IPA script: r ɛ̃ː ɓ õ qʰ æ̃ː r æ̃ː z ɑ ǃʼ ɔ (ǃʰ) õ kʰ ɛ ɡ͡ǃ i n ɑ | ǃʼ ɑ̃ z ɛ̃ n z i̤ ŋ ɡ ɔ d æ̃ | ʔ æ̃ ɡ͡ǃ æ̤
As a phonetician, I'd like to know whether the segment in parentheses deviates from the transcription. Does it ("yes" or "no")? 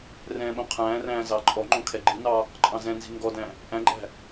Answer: yes